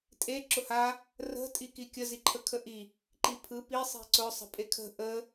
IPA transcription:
tʼe ǁʊha | rə̤ tʼikikʲə ziǃʰəkʰəʔi | ǃipʰɯ pi sˤi̤ǀʊ sˤə̤pʼekʰə̤ ʔə

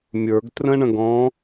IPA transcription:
mʲə˞ɡ trə̃ɳə̃ɡɔ̃

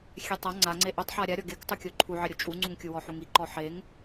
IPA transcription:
xʲɛtˤa ŋ͡ǀaŋ͡ǀe ʔotˤħa ɾʲaɾʲɔ ɡektˤukʲo ǃʰuʕɪɾʲo t͡ʃʼuŋ͡ǀuŋkʲu wɔħuŋiǃɔ ħeŋ

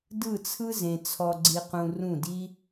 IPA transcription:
dɯ˦˨t͡sʰɯ˦zẽ˨ t͡sʰɔ˧ɡ͡ǀi˧qũ˧ rũ˦˨di˦

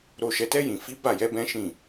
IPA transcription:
ɾo˨ʃɛ˨tɛ˧ jĩ˨ fi˨˦ ba˦˨jɛ˨˦bɛ̃˦ʃĩ˦˨

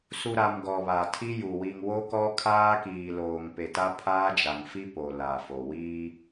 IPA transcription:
su˨ɾa˨m ɡɔ˨βa˨tʰi˦ju˨ wi˨ŋwo˦kɔ˦ kʰaː˦kiː˨loː˨ŋ pe˨ta˦pʰaː˦ d͡ʒa˨ŋfi˦ po˨ la˨fo˨ wiː˦

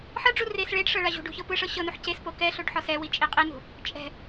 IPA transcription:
ħɤɖ͡ʐu res ɭeɖʂɤ ɭaʑṳɖṳ çɤpɯʂɤ ɕɤnuħ ces pokɛɬoɖ ħɔsɛwi t͡ʃʼiqʼinṳ | t͡ʃʼɛ̤

